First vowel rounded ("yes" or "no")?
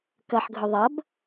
no